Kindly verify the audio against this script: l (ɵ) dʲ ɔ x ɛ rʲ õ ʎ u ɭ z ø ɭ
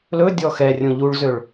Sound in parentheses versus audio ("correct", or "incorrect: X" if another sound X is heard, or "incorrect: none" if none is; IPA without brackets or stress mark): correct